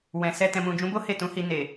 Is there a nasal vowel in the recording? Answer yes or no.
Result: yes